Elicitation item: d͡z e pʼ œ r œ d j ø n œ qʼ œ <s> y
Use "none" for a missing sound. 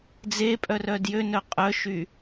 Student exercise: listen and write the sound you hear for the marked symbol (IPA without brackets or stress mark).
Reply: ʃ